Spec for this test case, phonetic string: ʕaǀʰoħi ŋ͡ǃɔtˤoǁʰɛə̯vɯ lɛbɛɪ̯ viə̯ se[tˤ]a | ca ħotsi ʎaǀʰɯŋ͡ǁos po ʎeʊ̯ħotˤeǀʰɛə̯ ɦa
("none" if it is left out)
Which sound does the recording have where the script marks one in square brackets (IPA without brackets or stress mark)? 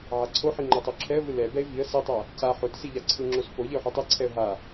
tˤ